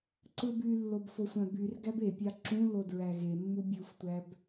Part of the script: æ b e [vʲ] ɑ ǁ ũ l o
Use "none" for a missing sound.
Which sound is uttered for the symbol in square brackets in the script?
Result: pʲ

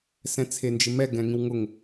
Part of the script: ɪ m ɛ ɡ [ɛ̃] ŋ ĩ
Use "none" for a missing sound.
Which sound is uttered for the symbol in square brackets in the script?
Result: ɛ̃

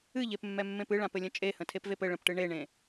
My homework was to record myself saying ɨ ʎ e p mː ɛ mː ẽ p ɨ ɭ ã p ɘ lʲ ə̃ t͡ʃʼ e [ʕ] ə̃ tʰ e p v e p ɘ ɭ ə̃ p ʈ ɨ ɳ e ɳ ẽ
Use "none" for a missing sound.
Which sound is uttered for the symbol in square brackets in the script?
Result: h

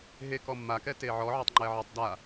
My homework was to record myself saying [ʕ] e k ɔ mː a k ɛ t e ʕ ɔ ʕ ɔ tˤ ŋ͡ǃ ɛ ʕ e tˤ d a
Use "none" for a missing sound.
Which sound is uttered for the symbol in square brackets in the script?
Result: ɦ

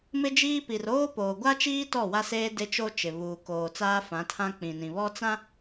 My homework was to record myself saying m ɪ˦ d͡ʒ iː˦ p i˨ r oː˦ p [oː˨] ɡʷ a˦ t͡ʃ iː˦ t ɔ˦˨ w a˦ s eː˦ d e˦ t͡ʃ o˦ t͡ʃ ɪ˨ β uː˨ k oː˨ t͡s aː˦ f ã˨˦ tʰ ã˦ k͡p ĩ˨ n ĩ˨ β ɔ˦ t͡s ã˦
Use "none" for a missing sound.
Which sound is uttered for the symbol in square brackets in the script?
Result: oː˨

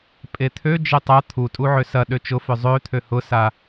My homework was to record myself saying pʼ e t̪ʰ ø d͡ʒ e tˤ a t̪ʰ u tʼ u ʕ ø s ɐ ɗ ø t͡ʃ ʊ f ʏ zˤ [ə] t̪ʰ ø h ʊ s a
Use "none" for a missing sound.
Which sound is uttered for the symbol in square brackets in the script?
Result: ø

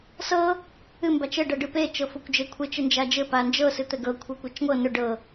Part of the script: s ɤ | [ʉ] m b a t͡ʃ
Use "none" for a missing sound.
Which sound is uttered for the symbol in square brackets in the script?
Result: ɨ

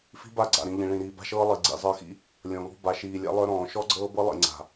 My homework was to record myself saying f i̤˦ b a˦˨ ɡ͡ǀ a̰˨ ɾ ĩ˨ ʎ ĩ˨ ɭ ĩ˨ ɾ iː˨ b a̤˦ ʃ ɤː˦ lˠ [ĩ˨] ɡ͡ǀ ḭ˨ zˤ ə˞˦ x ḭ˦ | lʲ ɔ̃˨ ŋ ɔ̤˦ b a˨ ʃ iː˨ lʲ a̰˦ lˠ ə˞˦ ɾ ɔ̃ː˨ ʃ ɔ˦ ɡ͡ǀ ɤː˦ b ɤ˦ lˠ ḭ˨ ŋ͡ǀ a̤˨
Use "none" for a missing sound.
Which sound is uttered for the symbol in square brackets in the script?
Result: i˨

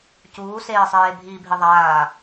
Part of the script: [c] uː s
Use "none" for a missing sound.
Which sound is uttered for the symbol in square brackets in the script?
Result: c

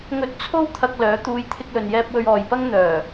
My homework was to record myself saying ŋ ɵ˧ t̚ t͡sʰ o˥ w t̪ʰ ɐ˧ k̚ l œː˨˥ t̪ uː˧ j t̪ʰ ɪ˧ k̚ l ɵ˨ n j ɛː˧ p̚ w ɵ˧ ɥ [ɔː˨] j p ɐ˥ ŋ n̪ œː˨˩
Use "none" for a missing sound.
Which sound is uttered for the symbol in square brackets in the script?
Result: ɔː˨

